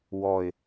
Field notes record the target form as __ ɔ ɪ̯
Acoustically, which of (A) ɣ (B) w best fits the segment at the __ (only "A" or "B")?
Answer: B